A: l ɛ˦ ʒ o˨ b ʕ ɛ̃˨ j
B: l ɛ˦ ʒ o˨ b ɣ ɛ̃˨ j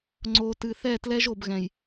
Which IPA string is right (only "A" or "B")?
B